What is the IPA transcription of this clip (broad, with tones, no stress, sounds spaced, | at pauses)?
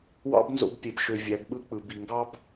w ɑ̰˦ b n z o̰˧ b pʲ e˨ b ʃ ø˨ vʲ æ˨˦ b ɓ ɯ˦ k͡p ɯ˨ b i˨ ŋ ɡ ɑ˦ b